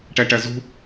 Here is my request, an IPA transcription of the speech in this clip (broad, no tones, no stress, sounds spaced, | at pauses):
ʈ æ ʈ æ z ṳ